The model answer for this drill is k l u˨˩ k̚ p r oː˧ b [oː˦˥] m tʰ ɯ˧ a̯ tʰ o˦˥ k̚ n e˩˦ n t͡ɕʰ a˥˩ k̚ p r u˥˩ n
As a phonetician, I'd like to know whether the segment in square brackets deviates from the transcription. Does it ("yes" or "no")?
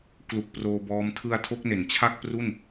yes